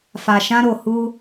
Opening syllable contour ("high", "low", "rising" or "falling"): low